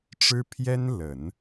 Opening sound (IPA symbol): ʈ͡ʂ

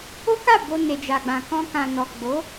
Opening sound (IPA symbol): o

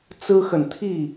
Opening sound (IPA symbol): t͡s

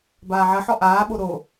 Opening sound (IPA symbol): b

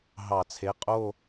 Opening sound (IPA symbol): ɦ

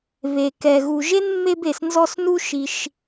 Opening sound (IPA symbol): β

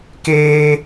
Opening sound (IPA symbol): k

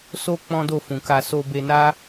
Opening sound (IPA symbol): s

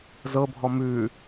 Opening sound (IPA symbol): z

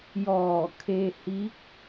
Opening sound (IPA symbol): j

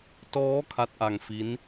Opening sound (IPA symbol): t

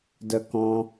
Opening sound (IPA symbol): d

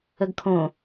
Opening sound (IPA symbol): ə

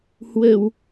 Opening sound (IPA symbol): h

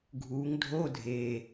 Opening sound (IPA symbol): ɡʱ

